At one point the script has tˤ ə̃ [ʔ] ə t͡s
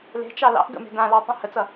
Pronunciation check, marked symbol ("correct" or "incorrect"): incorrect